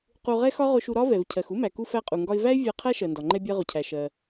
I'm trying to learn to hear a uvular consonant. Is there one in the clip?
yes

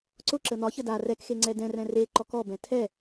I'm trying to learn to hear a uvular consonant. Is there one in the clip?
no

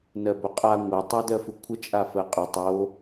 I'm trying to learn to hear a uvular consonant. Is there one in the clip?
yes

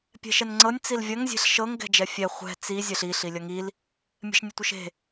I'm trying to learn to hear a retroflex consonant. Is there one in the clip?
no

